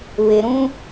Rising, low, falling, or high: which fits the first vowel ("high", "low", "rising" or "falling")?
low